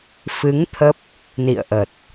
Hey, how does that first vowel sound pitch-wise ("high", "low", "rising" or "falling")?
rising